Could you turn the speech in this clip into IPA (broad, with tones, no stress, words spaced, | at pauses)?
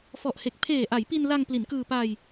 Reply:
fɔ˨˩ʔhe˨˩k̚ pʰeː˨˩ʔa˩˦jpi˧nla˧ŋ pli˩˦nkɯː˧ pa˧j